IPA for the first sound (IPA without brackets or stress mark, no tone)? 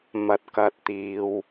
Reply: m